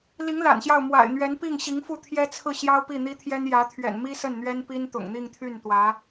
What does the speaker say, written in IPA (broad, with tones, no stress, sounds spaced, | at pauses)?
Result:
l i˧˥ ŋ l a̰˨˩ n ɕ j ɑ˥˩ ʊ̯ m w a̰˨˩ ɪ̯ n̪ ɥ ɛ˧˥ n p i˥˩ ŋ ɕ i˧˥ ŋ f u˥˩ t̪ʰ j ɛ˥ t͡sʰ ɹ̩˥˩ ɕ j ɑ˥ ʊ̯ p i˥˩ n̪ i˥ t̪ʰ j ɛ˥ n j ä˧˥ t̪ʰ ɥ ɛ̰˨˩ n m i˥ s ə˥˩ n n̪ ɥ ɛ˥ n p i˥ n t̪ ʊ̰˨˩ ŋ n̪ i˥˧ ŋ t̪ʰ y˥˩ n t̪ w ä˧˥